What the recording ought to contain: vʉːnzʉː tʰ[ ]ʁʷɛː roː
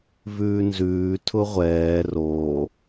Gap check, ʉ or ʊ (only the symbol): ʊ